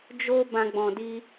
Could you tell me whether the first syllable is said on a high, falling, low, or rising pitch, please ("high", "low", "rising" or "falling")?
high